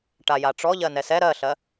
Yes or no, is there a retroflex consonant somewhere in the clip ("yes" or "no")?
yes